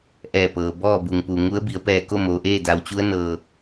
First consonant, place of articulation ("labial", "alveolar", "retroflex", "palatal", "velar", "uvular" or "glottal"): glottal